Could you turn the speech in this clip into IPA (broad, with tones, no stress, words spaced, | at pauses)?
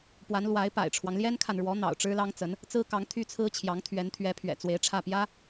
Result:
pwa˧˥nlwa˧˥ɪ̯pa̰˨˩ɪ̯ʈ͡ʂʰwɑ˦ŋ ljɛ˥nkʰa˨nɻwɔ˧˥ n̪ɑ̰˨˩ʊ̯ ʈ͡ʂɻ̩˥lɑ˥ŋt͡sə˧˥n | t͡sɹ̩˥kɑ˧˥ŋ t̪ʰy˥t͡sʰɹ̩˥t͡ɕʰjɑ˧˥ŋ t̪ʰɥɛ˧˥nt̪ʰɥɛ˧˥pʰɥɛ̰˨˩ t͡swe˧˥ɪ̯ʈ͡ʂʰä˥˩pjä˥